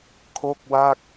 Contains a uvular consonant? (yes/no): no